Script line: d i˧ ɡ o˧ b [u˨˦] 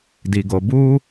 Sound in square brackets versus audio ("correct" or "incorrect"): incorrect